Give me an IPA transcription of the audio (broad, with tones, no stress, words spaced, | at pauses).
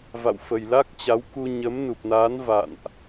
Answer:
va̰˧˨wfə˨˩jla˦˥k̚t͡ɕa˨˦w ku˧ ɲə˨˦mnu˨˩p̚naː˨˦n va̰˧˨nʔ